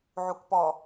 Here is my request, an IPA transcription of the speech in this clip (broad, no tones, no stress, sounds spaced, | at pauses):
ʕ u k p ɔ